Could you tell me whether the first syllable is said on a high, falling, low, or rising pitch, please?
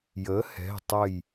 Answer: rising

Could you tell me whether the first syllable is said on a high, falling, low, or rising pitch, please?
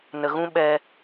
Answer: low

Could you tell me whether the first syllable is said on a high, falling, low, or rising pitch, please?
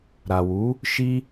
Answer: low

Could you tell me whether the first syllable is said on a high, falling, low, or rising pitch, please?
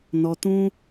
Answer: low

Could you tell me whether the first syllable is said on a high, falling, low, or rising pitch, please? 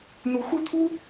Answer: rising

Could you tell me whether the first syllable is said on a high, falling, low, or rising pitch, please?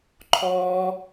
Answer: high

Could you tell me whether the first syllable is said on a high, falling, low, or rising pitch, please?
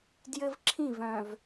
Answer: high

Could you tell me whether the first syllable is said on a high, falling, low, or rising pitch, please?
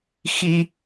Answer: high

